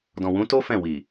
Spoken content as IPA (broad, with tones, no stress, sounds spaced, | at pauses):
d ɔ̃˨ w ũ˨˦ t o˦ f ɛ̃˦˨ w i˨